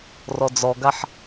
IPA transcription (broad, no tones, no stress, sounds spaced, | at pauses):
r ɔ d͡z ɔ ɡ a ħ